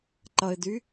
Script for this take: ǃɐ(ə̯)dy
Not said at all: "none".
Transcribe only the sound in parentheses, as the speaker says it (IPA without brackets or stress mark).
ɪ̯